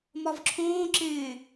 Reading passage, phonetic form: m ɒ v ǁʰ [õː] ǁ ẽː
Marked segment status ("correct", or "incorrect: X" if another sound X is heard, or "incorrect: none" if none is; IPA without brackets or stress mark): correct